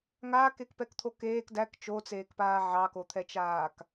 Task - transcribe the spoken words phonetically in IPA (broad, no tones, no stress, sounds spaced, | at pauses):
ŋ aː k e k p ɛ k t̪ʰ o k eː k d æ k t͡ʃ o t͡s eː k p aː ʕ ɑ k o t̪ʰ ɛ t͡ʃ aː k